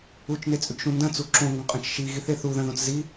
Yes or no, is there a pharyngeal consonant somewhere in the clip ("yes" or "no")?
no